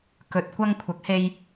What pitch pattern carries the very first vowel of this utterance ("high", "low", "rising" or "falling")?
low